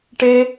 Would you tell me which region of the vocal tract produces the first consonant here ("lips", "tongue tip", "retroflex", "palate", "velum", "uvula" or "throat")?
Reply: retroflex